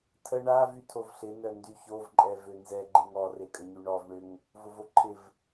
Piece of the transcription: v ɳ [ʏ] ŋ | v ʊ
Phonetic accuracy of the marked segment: correct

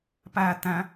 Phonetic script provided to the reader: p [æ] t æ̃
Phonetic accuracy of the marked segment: correct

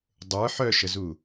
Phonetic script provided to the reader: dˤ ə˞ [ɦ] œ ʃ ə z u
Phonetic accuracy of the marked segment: incorrect: ħ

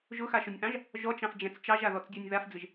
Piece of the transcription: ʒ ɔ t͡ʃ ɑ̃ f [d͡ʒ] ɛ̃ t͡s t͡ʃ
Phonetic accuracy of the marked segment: correct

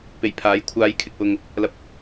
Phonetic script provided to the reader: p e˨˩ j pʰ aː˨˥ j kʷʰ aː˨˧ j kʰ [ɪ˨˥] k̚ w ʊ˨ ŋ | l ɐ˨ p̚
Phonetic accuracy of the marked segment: incorrect: ɪ˨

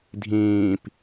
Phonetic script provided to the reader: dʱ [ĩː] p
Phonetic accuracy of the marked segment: correct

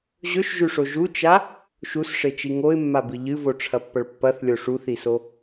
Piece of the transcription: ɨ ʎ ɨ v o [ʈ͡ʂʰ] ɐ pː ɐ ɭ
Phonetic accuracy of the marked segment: correct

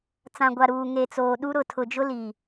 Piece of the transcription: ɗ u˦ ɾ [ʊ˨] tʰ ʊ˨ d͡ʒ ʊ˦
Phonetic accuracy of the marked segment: correct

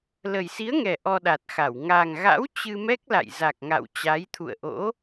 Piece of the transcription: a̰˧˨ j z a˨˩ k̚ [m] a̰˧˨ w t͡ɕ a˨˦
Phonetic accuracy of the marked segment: incorrect: ŋ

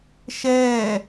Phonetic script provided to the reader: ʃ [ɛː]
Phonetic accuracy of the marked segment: correct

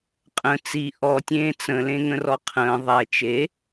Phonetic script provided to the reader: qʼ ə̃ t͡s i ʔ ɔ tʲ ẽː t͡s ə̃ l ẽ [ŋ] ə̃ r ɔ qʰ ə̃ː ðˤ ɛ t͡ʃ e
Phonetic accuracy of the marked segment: correct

